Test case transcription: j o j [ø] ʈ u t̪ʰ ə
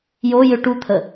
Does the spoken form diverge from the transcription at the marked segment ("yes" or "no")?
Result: no